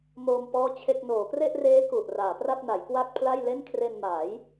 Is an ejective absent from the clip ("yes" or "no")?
yes